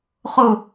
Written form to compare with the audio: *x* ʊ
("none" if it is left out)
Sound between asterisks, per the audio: χ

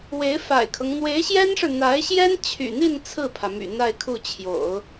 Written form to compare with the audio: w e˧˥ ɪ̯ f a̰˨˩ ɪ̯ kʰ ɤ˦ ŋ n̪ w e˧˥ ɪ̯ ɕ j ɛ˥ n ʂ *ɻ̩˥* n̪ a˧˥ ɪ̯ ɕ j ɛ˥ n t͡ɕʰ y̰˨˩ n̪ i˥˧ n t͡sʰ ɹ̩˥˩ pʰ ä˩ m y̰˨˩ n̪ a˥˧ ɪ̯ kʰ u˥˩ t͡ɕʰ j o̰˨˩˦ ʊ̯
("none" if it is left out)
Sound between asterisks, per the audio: ɻ̩˨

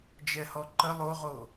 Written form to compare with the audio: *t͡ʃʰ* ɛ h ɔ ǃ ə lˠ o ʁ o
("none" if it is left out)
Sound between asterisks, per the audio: d͡ʒ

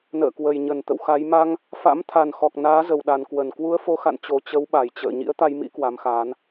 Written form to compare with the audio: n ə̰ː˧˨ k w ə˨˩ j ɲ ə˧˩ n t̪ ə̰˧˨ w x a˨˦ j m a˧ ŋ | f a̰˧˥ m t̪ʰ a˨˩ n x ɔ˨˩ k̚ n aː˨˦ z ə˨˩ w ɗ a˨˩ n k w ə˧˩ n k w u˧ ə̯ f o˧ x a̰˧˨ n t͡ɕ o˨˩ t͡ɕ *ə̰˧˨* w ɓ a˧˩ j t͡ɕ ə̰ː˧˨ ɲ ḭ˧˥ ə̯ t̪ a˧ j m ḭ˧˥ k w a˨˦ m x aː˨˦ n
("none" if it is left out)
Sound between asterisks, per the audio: ə˨˦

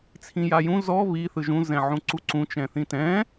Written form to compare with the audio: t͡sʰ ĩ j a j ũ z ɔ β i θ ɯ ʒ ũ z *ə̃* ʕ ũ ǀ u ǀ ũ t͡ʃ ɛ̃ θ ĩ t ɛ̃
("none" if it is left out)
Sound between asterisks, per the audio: ɛ̃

